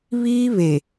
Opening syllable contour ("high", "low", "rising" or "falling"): high